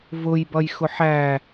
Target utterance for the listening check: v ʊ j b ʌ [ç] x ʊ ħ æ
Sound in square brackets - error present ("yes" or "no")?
yes